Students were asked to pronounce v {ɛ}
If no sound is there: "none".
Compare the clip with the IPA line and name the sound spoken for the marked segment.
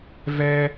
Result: ɛ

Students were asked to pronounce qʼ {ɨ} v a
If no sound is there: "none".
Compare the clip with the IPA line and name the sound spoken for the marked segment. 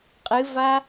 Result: ɨ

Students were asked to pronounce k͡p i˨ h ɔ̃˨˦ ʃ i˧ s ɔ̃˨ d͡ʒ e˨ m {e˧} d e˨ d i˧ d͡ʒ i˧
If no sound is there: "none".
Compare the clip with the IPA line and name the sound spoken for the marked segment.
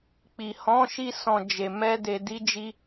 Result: ɛ˧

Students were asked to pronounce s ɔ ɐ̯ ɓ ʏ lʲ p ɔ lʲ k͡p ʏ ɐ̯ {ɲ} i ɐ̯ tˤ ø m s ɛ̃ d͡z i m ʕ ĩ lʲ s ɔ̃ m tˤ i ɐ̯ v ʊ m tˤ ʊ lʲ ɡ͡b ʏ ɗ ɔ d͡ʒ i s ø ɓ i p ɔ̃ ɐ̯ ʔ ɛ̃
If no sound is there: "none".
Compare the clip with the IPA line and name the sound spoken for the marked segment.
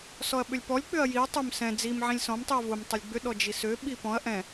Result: j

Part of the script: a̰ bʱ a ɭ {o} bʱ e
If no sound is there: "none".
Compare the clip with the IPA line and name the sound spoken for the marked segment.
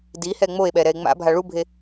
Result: u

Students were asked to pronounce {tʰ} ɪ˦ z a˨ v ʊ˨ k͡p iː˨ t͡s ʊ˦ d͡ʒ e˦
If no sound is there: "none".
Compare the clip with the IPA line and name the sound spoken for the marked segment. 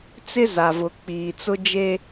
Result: t͡s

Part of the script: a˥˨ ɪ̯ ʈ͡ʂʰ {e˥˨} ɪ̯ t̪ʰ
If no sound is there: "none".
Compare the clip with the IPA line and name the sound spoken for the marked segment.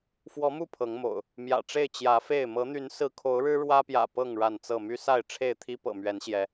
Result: e˥˨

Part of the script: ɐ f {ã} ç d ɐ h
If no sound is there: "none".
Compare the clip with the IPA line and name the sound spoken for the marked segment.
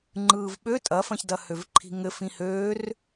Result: ɐ̃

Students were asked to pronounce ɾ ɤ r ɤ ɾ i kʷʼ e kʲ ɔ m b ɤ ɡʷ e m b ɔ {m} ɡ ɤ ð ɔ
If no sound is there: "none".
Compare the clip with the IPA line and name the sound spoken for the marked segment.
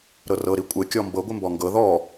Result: ŋ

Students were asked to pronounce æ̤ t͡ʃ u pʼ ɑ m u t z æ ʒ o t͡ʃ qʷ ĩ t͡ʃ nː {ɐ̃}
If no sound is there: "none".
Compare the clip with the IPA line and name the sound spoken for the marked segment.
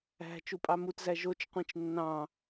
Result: ɑ̃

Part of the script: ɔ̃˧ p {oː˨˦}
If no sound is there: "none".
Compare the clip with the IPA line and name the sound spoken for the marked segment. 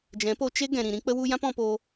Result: oː˧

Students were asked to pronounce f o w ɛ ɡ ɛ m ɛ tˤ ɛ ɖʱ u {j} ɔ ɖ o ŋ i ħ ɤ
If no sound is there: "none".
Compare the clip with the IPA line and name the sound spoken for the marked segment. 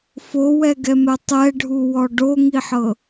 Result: w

